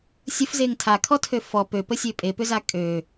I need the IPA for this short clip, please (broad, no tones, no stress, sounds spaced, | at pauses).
sʲ ə f z e ŋ tʰ a kʰ ɔ tʰ ø f ɔ p ø p ə sʲ ø pʼ e p ʏ z a kʼ ø